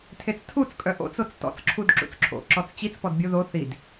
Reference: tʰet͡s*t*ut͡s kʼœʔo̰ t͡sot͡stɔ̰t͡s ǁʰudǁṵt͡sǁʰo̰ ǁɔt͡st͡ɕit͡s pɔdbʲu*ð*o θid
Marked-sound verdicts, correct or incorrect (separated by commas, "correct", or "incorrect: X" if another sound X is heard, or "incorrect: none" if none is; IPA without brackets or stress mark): incorrect: tʰ, correct